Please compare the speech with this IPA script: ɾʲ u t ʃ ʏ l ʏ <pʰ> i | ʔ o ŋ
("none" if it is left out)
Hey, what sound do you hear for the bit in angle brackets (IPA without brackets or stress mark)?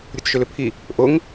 pʰ